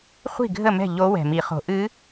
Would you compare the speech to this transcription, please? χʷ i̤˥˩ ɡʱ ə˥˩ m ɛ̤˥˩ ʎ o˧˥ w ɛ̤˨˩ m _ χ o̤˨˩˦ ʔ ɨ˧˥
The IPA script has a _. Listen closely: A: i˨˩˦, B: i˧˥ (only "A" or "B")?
A